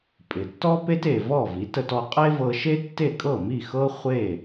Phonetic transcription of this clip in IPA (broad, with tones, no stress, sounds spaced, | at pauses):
pʼ ɪ˩ tː ɔ˥ p e˥ t e˩ v ɔ˥˩ v i˩˥ t ə˧ t ɔ˧ qʼ e˥ v ɤ˧ ʃ e˥ tː e˥˩ kʼ ɤ˥˩ m i˥˩ x ɤ˥ χʷ e˥˩